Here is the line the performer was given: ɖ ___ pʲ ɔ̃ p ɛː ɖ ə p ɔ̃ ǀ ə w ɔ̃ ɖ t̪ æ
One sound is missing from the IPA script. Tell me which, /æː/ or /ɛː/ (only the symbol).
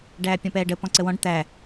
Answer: æː